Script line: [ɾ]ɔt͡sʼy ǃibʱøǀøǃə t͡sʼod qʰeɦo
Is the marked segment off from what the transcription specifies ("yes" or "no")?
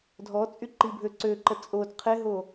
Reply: yes